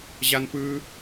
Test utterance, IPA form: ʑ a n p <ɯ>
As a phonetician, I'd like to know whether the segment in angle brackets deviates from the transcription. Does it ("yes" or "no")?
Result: no